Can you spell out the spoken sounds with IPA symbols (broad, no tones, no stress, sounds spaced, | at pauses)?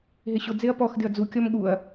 ɦ e ɕ ʊ d͡z e ɐ̯ p ɔ x d ɪ ɐ̯ d͡z u kʲ ɔ m ɠ u ɐ̯